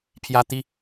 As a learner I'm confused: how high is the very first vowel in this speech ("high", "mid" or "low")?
low